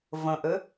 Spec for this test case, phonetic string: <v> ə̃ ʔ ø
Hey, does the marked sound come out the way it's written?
yes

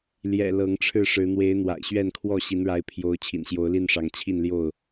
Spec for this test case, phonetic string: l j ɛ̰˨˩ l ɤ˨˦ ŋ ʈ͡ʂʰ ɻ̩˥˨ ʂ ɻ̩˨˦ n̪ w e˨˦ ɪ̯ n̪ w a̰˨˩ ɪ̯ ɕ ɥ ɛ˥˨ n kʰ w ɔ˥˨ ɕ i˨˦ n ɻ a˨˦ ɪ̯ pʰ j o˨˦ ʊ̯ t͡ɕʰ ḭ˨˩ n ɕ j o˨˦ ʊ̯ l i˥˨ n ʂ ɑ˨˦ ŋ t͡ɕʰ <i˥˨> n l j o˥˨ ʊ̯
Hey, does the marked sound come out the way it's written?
yes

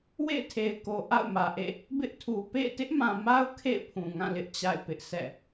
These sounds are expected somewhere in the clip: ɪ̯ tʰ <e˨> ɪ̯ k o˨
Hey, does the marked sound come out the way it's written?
yes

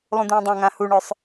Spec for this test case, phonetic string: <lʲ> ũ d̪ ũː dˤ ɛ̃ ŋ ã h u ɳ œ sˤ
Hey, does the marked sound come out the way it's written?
no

